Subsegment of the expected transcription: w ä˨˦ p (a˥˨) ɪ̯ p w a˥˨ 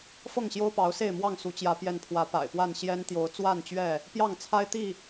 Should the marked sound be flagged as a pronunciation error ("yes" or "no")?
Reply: yes